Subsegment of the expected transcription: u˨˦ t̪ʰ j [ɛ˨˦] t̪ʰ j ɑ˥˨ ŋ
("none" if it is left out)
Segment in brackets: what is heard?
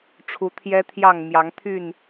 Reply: ɛ˦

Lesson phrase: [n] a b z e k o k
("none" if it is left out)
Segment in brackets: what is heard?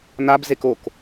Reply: n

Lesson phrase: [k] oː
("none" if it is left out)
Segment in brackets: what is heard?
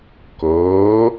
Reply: k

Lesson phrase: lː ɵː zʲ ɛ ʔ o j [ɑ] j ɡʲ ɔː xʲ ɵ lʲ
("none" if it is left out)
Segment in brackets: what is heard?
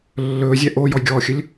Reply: ɔ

